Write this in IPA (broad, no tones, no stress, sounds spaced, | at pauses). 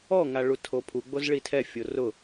ɔ ŋ a ɭ u tʰ o pʰ u ɡ͡b o z ɭ i tʰ ɛ fʲ o r ʊ